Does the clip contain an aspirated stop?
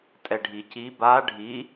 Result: no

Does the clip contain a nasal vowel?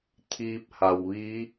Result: no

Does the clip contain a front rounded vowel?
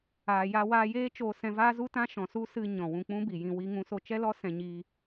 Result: no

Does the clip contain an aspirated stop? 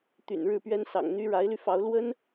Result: no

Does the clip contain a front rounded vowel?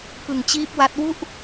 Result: no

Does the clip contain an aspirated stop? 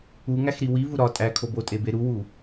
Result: yes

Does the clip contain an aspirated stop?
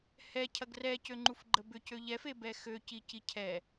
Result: yes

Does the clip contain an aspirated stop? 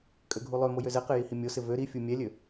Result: no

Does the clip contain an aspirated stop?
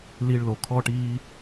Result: yes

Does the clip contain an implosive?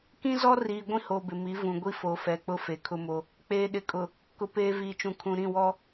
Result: yes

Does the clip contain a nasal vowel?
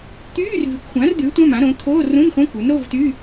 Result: yes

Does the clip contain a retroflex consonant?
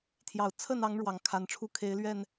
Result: yes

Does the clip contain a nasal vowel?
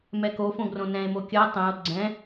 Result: yes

